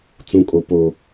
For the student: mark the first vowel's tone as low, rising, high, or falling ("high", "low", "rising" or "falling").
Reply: low